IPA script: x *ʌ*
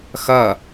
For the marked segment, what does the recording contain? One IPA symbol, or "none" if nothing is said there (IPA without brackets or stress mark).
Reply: ʌ